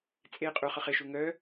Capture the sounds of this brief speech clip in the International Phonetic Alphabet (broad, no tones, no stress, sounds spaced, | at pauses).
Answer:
t͡sʼ e qʼ u χ œ χ ɪ ʃ u ŋ œ